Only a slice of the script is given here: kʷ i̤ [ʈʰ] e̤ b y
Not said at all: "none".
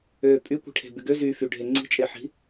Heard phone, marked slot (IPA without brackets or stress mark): ʈʰ